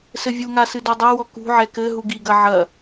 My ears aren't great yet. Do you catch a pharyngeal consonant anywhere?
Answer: yes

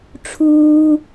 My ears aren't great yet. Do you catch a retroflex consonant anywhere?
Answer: yes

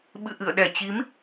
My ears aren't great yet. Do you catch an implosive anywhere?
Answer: yes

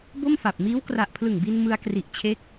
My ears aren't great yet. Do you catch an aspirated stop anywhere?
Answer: yes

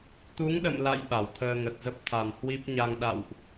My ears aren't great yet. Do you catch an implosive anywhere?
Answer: yes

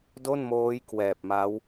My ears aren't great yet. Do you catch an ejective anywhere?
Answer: no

